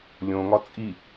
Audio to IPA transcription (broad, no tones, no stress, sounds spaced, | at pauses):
lʲ õ ŋ ɒ t͡sʼ i